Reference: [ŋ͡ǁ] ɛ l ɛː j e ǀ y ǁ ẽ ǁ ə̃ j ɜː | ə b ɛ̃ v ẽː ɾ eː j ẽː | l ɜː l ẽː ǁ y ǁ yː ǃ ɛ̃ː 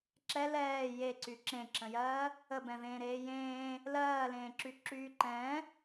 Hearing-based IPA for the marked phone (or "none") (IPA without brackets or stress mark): ǁ